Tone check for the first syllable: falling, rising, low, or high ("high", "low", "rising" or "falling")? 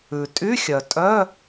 low